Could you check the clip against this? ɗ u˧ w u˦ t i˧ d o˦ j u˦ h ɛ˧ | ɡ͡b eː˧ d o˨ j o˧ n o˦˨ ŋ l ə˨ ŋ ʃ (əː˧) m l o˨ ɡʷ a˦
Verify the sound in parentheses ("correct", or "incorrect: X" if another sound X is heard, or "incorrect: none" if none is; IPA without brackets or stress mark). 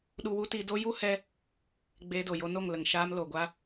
incorrect: aː˧